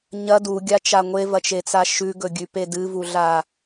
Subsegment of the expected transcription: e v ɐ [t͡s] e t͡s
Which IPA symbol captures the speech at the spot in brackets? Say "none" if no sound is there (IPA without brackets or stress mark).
t͡ʃ